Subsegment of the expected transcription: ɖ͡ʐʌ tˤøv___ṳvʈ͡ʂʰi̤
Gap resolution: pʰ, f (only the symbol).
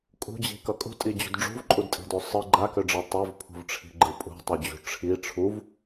pʰ